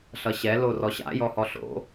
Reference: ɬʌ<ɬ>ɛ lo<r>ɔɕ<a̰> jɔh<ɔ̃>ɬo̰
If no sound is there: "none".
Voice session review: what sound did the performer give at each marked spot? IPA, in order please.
ɕ, r, a̰, ɔ

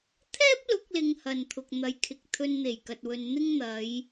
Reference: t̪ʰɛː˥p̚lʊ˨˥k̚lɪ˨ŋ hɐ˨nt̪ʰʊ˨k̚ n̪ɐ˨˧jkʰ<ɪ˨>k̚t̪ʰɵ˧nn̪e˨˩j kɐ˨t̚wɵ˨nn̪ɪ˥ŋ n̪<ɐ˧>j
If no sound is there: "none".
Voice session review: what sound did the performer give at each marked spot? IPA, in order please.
ɪ˨, ɐ˨˧

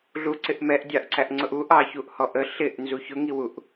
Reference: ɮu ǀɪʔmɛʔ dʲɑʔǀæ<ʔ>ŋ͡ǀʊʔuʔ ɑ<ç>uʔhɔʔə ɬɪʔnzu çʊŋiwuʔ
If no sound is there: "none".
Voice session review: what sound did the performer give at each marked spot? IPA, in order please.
ʔ, ç

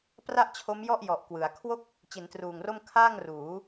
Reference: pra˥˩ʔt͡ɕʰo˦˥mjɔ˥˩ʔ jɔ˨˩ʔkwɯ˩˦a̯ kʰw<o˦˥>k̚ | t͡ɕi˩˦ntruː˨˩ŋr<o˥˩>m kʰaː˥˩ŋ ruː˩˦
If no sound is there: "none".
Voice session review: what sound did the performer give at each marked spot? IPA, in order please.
o˥˩, o˥˩

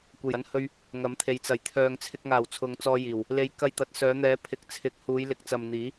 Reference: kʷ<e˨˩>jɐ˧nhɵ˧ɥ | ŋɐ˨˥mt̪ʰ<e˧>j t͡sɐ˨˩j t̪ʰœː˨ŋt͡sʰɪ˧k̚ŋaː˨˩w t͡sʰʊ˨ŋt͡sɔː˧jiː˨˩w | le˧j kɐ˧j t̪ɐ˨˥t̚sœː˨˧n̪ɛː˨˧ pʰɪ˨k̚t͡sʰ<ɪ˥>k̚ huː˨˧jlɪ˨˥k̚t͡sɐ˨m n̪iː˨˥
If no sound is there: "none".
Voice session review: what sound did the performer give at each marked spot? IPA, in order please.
e˨˩, e˨˧, ɪ˨˥

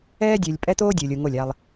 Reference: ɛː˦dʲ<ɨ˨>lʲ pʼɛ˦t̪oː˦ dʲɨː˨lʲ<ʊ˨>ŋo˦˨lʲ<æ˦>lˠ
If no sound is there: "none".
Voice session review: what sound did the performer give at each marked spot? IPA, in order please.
ɨ˨, u˨, a˦

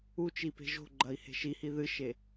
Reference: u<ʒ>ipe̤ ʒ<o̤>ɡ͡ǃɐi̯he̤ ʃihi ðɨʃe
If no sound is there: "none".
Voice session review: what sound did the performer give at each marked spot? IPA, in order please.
t͡ʃ, o̤

